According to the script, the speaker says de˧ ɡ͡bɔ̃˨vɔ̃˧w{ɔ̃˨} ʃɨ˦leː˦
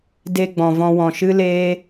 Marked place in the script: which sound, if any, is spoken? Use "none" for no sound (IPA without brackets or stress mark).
ɔ̃˨